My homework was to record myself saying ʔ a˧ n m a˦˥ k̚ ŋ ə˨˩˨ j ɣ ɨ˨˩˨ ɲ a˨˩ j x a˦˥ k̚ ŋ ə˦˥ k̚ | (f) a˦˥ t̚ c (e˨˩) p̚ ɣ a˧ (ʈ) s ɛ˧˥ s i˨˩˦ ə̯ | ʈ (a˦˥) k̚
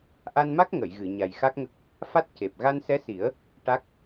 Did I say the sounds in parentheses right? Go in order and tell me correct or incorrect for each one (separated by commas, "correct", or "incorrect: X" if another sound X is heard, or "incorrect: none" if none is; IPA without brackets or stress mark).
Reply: correct, correct, incorrect: n, correct